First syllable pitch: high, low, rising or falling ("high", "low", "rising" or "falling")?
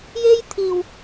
high